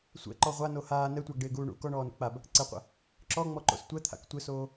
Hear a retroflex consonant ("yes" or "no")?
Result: yes